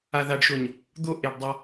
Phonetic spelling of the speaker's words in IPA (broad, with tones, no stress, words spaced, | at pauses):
a˨ða˨ɖʃo˨ɲ | d̪o˦˨ʔe˨ɖ dˤa˦